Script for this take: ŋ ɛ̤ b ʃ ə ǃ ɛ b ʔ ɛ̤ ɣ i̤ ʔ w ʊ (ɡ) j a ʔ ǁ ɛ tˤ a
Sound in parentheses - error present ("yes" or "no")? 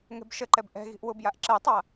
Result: yes